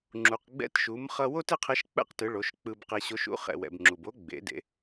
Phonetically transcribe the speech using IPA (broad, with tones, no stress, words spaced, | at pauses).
ŋ͡ǁu˩q ɡ͡bɛ̰˧˥tʃu˩˧mχʌ˧wo˥t e˥qʰe˧˥ʃk͡pɛ̰˥qtɯ˩˧ ɭo˩˧ʃk͡pɯ˧bqe˧ ɕo˧˥ʃṵ˧˥ χɛ̰˩wɛ̰˩b ŋ͡ǁu˩bo˧˥ɡ͡bḛ˩˧dḛ˩˧